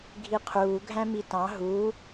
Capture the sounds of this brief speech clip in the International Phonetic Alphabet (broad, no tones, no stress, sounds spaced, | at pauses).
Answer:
ɡʱ i qʰ uː ɡʱ æ̃ m i t ɑ̃ ɦ u